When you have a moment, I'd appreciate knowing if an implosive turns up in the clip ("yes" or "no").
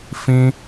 no